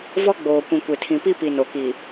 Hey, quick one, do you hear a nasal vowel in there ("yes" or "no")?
yes